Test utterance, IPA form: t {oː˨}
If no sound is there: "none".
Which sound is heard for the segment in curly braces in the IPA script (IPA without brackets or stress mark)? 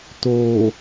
oː˨